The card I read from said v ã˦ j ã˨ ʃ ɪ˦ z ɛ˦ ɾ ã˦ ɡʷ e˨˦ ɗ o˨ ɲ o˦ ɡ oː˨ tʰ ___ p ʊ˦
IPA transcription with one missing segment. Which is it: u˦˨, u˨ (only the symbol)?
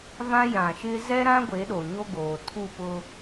u˦˨